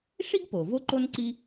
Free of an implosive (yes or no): yes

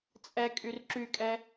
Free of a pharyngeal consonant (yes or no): yes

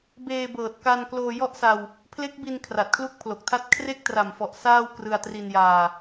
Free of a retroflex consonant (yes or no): yes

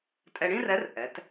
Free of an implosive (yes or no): yes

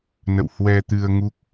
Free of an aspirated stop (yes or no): yes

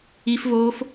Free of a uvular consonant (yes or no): yes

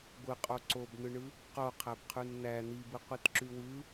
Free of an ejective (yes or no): no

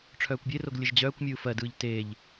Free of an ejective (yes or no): yes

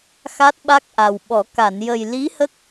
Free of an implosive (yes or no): no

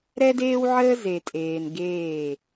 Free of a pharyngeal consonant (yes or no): no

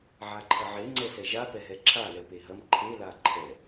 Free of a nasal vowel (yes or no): yes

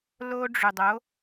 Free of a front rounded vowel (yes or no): no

